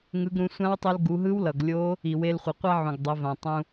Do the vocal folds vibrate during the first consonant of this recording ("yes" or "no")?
yes